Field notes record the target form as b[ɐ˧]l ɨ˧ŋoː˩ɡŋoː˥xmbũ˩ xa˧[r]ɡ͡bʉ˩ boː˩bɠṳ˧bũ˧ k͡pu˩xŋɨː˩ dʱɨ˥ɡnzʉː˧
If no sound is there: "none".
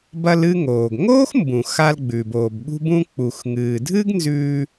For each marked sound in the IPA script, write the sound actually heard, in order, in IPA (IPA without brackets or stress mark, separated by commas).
ɐ˧, l